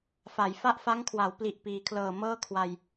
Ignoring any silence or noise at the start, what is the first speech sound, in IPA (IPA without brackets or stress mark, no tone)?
f